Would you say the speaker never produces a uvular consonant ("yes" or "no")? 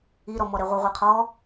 no